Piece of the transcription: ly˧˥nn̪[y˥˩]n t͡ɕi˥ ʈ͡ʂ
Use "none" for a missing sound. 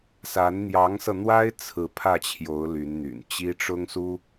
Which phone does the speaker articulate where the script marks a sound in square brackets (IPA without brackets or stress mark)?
y̰˨˩